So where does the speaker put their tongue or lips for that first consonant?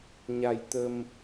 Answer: palate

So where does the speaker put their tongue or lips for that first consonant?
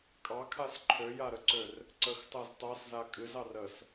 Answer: velum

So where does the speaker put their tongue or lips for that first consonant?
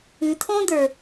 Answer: tongue tip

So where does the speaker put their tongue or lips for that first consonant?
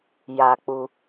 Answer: palate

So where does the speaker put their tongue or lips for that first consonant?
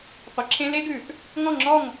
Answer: uvula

